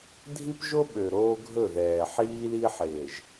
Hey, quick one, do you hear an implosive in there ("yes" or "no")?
yes